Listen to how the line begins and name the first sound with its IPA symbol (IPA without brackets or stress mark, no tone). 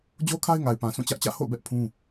d͡ʑ